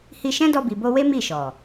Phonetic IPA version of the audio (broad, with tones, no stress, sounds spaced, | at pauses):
h i˧ ʃ ɛ̃˦ d ɔ˧ b i˨ b o˧ w e˦ m i˦˨ ʃ ɔ˨